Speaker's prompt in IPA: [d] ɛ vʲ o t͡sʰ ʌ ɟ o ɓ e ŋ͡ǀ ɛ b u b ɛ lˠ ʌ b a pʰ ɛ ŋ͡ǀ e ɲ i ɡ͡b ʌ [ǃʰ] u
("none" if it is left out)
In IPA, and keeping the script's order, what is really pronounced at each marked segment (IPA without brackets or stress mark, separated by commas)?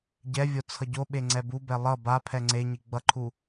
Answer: ɟ, ǃʰ